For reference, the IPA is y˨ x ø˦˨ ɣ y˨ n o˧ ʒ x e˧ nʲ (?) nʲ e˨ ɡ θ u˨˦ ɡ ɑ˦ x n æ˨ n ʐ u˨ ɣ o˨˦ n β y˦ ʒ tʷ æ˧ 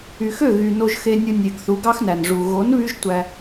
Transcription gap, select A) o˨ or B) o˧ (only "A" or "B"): B